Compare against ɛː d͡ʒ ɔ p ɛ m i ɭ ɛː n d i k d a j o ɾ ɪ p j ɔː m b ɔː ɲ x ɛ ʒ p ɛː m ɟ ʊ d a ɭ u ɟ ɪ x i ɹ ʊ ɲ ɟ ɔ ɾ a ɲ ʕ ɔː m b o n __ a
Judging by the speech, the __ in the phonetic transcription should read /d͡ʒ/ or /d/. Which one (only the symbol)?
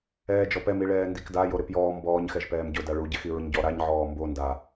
d